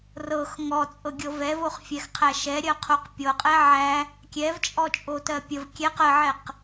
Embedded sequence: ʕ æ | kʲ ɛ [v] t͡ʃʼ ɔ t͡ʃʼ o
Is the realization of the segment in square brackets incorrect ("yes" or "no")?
no